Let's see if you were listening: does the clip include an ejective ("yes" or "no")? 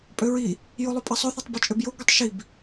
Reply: yes